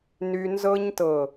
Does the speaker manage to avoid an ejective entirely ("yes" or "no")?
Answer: yes